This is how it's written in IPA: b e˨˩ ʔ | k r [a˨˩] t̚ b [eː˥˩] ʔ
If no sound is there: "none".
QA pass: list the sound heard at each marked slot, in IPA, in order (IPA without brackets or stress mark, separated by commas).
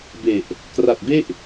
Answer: a˨˩, e˥˩